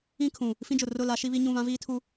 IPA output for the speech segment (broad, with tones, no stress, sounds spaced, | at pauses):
ĩ˦ kʰ ũ˨ | f ĩ˦ d͡ʒ ʊ˨ r ʊ˦˨ l a˦ ʃ i˦ β i˦ ɲ ũ˦˨ β ã˦ v iː˦ tʰ u˦